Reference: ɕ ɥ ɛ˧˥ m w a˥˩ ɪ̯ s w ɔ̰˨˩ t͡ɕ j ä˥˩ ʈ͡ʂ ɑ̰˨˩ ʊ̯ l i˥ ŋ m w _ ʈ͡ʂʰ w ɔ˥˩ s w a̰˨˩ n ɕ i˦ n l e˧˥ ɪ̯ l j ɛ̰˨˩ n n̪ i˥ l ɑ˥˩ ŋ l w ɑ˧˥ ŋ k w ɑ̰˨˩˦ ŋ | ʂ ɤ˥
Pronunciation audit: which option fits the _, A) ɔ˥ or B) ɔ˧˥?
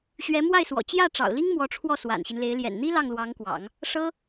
B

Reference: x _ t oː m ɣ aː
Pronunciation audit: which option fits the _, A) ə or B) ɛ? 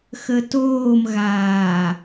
A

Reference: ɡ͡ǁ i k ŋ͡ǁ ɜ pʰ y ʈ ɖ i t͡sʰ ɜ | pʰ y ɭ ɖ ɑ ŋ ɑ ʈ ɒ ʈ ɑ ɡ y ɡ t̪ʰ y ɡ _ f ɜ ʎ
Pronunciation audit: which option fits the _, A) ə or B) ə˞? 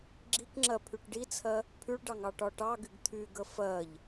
A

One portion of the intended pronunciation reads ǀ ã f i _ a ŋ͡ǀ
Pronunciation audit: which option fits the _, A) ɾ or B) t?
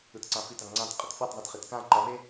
B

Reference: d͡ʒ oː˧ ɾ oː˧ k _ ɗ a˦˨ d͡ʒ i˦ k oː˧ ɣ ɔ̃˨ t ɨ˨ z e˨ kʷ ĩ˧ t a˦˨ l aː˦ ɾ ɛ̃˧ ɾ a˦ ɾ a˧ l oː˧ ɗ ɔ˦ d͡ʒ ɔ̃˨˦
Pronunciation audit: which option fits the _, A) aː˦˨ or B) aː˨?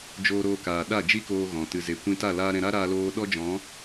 B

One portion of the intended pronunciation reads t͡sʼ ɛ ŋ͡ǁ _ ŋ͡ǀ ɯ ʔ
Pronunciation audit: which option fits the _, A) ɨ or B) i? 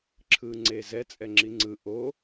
B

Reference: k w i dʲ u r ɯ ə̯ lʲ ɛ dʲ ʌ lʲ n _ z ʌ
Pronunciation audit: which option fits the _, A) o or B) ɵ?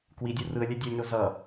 A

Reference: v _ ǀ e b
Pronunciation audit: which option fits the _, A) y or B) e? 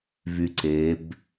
A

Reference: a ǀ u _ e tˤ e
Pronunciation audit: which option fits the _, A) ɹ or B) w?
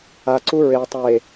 A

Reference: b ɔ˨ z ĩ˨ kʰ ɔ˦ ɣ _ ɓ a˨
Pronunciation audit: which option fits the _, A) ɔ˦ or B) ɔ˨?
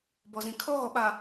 B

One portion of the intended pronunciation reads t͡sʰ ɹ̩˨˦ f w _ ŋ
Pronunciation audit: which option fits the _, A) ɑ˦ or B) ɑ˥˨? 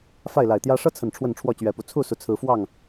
B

